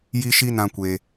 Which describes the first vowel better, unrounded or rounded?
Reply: unrounded